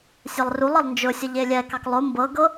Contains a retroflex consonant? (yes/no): no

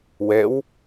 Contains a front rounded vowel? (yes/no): no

